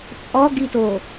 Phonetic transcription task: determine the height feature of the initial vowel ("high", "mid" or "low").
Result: mid